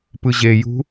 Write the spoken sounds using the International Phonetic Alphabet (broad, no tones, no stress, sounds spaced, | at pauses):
p ɯ ʑ e j ṳ